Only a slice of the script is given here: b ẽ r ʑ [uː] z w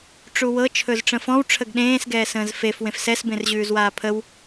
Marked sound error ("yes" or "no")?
yes